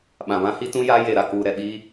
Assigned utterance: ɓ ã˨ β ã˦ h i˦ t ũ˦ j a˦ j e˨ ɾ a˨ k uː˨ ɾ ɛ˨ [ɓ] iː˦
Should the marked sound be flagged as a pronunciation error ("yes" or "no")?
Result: no